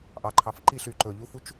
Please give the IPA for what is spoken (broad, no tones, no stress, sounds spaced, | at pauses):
ʔ ɑ ǃʰ ɑ f ǃ i ɬ y ǃ ɵ ʎ u f u t͡ʃ